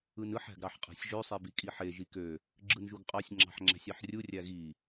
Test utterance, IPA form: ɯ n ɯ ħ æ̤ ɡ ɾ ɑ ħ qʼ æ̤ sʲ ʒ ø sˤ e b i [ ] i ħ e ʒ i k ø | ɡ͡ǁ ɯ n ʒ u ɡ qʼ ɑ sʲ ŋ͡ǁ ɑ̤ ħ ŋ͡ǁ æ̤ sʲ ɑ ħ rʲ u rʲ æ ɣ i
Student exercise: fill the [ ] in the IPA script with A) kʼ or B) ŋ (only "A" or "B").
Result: A